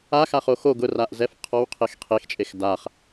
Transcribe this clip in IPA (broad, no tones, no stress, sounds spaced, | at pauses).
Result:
a x a χ o x o ɡ ʊ r a ʔ z ɛ f qʰ ɔ w qʰ e x qʰ e x t͡ʃʼ e x d a χ